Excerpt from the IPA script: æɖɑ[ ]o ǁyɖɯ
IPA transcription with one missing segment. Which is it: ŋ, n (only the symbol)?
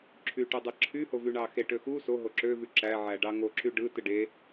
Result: ŋ